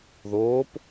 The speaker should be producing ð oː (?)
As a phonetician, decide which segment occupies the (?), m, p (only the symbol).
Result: p